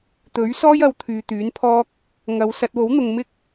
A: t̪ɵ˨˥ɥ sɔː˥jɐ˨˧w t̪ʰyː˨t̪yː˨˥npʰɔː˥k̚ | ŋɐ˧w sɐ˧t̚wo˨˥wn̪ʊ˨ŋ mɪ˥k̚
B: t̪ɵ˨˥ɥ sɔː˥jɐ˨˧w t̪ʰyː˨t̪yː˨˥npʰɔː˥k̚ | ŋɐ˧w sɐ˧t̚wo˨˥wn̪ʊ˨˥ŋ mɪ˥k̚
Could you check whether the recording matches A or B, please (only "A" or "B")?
A